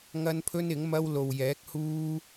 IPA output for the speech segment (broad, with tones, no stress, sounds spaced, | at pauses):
ŋ ɐ˥ n pʰ ɵ˥ n ɪ˨˥ ŋ m ɐ˥ w l o˨ w j ɛː˨˥ k̚ h uː˥